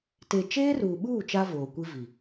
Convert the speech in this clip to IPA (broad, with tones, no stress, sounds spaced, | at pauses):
t e˨ t͡ʃ eː˦ r uː˨ ɓ uː˦˨ t͡ʃ a˦ v oː˨ kʷ i˦ v i˨